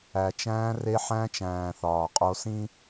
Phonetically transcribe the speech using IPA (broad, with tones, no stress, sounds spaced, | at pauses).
æ˨ t͡ʃ æ̃ː˧ r e˧ ħ æ̃˧ t͡ʃ æ̃ː˨ θ ɒː˨ qʼ o˧ s ĩ˦